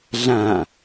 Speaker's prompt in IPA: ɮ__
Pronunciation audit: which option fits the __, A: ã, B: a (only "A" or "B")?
A